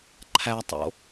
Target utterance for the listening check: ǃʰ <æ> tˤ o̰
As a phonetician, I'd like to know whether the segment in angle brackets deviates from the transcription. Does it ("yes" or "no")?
no